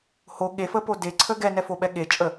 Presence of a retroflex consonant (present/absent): absent